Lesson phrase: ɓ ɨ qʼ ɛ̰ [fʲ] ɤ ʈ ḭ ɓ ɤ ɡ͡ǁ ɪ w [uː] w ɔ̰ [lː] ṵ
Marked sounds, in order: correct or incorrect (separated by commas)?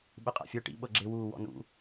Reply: correct, correct, incorrect